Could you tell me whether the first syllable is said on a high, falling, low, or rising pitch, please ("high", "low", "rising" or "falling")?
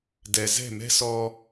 low